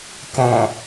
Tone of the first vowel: low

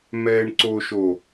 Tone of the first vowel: low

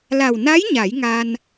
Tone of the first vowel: low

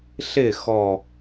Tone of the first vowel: falling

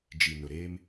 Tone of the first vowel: low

